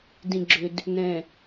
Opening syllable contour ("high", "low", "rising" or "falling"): low